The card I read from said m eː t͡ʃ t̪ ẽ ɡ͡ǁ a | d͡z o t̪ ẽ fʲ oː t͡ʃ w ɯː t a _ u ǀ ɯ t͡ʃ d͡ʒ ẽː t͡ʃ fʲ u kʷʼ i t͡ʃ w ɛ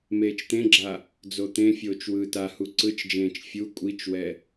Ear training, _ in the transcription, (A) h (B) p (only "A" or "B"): A